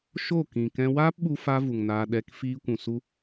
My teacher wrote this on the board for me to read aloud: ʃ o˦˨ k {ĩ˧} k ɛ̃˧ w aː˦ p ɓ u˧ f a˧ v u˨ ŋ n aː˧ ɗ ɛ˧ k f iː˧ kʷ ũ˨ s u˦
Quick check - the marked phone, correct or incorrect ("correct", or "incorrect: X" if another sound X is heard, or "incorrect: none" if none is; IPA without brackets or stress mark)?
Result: incorrect: ĩ˨